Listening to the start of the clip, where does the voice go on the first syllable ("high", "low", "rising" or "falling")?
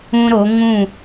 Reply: high